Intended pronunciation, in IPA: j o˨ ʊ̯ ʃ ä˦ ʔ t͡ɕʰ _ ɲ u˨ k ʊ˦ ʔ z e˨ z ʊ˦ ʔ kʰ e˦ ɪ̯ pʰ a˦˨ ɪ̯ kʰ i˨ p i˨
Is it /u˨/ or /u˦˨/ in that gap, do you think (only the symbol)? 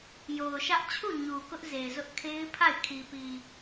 u˦˨